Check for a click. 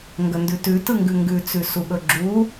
present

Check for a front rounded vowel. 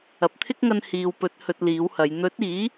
absent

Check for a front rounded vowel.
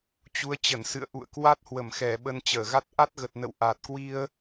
absent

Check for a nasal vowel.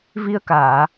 absent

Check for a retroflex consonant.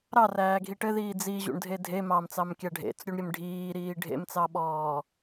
present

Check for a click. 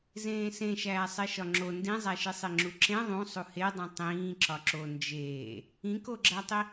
present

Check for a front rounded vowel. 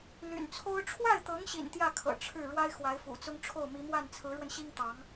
present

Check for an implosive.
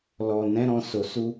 absent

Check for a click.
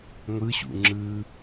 present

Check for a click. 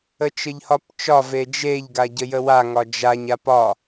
absent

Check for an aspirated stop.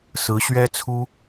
present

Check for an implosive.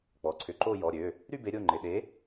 present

